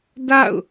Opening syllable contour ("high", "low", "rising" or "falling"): falling